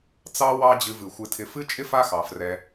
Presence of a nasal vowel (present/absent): absent